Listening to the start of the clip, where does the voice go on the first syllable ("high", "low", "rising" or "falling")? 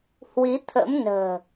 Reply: rising